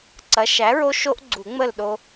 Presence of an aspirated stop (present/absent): absent